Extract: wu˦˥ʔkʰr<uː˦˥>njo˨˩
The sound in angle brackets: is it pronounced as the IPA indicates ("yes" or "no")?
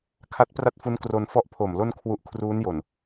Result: yes